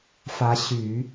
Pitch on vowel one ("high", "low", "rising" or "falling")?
rising